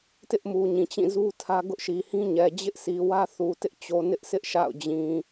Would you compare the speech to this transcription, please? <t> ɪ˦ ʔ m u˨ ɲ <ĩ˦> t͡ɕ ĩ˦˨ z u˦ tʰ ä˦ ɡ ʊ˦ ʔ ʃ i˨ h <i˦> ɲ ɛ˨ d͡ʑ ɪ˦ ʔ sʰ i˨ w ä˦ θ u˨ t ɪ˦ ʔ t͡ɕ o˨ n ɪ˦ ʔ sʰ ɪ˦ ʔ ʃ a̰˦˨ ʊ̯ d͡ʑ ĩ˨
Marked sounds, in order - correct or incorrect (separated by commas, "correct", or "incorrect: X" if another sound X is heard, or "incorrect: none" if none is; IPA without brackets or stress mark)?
correct, incorrect: ĩ˨, incorrect: ĩ˦